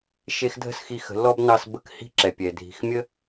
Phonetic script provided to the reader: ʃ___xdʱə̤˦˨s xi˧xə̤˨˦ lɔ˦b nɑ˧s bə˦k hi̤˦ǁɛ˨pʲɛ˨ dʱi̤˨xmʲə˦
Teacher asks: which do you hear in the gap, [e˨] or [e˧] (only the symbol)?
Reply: e˧